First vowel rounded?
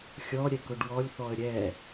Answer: yes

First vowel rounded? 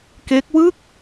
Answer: no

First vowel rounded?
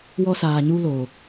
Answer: yes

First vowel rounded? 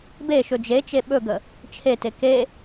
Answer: no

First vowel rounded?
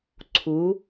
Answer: yes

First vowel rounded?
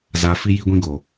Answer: no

